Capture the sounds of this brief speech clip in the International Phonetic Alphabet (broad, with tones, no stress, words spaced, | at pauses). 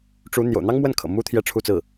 ʈ͡ʂu˧˥ n̪jo̰˨˩ʊ̯n̪ɑ˥ŋmwə˥˩n kʰɤ̰˨˩ mu˥ t̪ʰjɛ˥˧ʈ͡ʂʰu˥˧t͡sɹ̩˥˩